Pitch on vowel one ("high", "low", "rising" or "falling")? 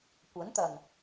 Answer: rising